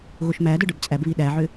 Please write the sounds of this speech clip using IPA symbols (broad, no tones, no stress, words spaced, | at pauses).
ɣoʃmædə˞ ɖə˞bt͡sʼæbβi ɗæʕʏ